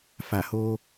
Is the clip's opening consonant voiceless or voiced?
voiceless